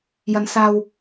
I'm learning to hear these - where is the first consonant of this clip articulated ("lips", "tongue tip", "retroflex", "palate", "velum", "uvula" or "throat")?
palate